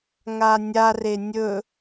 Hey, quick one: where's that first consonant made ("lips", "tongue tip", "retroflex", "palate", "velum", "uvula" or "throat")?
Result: velum